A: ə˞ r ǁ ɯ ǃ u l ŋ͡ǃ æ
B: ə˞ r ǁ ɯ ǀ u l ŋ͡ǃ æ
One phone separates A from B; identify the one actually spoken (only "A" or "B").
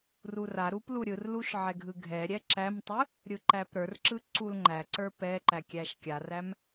B